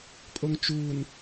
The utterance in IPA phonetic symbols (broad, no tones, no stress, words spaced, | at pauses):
pʼoŋt͡ʃuːn